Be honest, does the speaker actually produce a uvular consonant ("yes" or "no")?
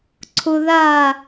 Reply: no